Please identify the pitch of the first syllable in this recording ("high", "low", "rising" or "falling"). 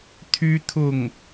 high